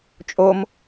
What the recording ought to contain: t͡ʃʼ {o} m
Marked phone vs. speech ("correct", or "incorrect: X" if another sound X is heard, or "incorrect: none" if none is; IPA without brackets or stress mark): correct